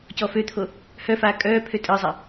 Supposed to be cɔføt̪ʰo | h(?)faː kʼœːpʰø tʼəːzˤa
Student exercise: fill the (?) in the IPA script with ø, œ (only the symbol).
œ